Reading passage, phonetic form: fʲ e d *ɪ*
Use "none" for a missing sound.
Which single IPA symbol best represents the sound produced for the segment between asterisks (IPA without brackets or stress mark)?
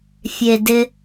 ɪ